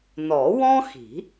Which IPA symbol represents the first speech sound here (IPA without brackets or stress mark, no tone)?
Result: n